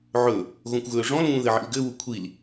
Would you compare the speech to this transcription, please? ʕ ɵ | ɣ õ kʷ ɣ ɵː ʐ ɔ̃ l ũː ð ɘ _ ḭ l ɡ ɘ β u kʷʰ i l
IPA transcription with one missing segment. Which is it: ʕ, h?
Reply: ʕ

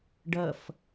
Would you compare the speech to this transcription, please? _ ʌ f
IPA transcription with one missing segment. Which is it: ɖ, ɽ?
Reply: ɖ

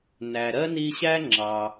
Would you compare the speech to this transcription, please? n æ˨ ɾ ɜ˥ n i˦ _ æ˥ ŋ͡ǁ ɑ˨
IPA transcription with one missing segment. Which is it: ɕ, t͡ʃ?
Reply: ɕ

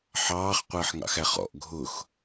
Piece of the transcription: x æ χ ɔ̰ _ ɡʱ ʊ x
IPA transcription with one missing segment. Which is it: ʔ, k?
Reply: ʔ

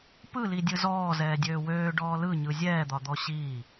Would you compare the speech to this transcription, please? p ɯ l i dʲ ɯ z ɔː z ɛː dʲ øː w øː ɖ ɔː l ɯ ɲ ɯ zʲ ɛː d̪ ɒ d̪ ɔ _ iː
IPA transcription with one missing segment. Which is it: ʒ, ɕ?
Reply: ɕ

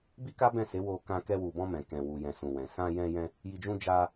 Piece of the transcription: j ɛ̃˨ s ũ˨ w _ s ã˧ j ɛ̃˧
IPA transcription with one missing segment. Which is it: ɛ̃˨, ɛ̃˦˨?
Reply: ɛ̃˨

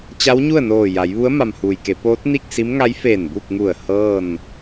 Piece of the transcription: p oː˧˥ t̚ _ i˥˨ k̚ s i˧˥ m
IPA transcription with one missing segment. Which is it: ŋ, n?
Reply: n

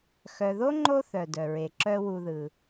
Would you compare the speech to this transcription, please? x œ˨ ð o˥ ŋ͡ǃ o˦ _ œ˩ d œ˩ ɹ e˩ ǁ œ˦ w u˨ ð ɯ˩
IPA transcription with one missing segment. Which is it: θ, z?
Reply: θ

